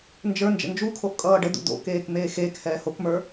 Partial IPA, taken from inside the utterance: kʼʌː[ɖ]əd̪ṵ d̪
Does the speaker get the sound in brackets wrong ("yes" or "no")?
no